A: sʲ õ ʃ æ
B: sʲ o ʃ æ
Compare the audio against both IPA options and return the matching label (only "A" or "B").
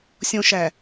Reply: A